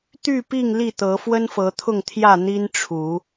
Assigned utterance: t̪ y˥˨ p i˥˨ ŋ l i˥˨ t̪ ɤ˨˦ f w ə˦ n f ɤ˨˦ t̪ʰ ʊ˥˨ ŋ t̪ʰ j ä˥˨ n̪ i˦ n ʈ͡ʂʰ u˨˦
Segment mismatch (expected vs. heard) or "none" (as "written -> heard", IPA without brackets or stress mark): none